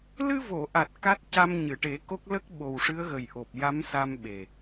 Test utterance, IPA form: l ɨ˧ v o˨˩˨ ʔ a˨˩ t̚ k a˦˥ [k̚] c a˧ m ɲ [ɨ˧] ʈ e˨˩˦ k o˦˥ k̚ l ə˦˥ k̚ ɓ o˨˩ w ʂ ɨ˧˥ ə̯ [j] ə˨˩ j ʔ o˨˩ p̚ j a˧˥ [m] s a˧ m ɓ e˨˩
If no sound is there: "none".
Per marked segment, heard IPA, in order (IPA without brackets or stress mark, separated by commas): t̚, ɨ˨˩˨, ɣ, m